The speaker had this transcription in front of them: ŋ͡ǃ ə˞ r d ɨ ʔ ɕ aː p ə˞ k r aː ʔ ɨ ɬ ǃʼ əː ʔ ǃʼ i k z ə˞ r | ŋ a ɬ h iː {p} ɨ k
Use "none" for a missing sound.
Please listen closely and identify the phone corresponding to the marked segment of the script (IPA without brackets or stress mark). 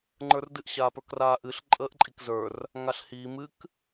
m